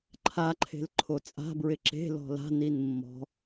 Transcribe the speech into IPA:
ǃʰ a ǃʰ e̤ l ǃʰ o t͡sʼ a̤ b ɹ ɪ ǁ e̤ l ɔ̤ l a̤ n i n mː ɔ̤

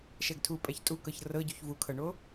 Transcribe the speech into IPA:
ʃ ɛ ɡ tʰ u pʼ ɛ ç tʼ u k ɤ ç r ɤ ɟ u ç v u kʰ ɤ ɳ o

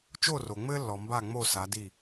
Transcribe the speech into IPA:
t͡ʃ o˦˨ r o˨ ŋ͡m ɘː˦ lː ɔ˨ m b a˦˨ ŋ͡m o˦˨ s a˨˦ d i˦˨

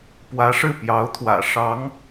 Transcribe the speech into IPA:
p w ä˧˥ ʂ ɻ̩˥˩ p j ɑ˧˥ ʊ̯ t̪ʰ w ä̰˨˩ ʂ ɑ˧˥ ŋ

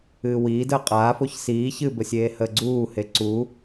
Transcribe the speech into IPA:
ɨː w iː d əː qʼ aː f o ç s iː ç ɨː b ə sʲ eː h əː ɡ͡ǀ uː h e ǀ u

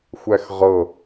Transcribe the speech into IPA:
xʷ æ x ʁ ɤ

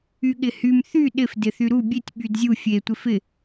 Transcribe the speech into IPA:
y ɠ ɪ h y m θ y ɗ ɪ f d ɪ θ y ɾ u bʲ e tʲ ɓ y d zʲ u fʲ e tʷ ɪ f ɪ

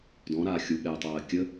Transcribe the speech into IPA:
d ɔ̃ ɾ aː xʲ u ɠ ɛː tˤ ɜː kʲ ə

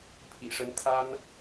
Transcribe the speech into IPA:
pʰ ḭ˨˩ ʂ ə˧˥ n t̪ʰ a˥ n

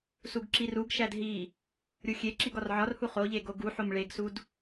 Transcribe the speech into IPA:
s u ɡ ǁ i r u ɡ ʃ æ d ɦ i | ɾʲ u xʲ e ǁ i ɡ ɒ r ʕ ɒ r h u χ o ʎ e ɡ o ɡ u ħ o m ɭ e ɡ s u d

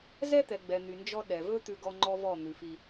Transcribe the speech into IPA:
z ɛ˦ t̪ ɛ˨ ɡ͡b ɛ˨ n̪ y˨ n d͡ʒ ɔ˦ ɗ ɛ˨ v ɵ˦ t̪ ʉ˦ ɡ ɔ˦ ŋ͡ǃ ɔ˦ v ɔ˦˨ n̪ ʉ˨ f i˦

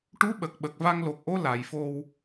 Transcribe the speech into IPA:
ʈ u˧˥ ɓ ə˨˩ k̚ ɓ ə˨˩ k̚ v a˧ ŋ l o˨˩ k̚ ʔ o˧˥ l a˨˩˨ j f o˧ w

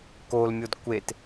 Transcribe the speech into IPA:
k o l mʲ o d kʷ e t

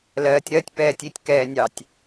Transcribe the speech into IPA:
l ɜː tʲ ɾ ɜ tʲ p ɛː tʲ i tʲ k ɛː nʲ ɑ tʲ

